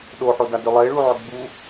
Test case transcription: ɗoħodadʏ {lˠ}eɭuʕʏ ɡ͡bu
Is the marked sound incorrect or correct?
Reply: correct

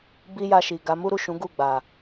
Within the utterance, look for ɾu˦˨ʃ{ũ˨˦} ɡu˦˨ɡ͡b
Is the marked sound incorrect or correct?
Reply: correct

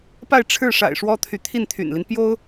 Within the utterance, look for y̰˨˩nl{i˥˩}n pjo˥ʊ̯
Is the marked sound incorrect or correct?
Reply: incorrect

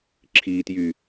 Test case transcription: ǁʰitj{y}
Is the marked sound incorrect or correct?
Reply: correct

